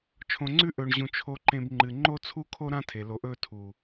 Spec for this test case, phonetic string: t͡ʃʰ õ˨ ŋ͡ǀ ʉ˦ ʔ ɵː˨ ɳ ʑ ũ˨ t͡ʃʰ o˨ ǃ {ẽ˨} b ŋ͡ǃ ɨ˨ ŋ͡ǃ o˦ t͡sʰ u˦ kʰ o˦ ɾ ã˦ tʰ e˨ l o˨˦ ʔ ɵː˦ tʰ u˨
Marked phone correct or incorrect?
correct